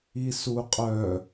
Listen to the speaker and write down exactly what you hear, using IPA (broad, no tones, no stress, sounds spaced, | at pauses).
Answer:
i s u qʼ œ